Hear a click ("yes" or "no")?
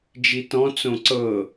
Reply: yes